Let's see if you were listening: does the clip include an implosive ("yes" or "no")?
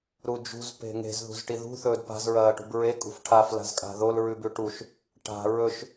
no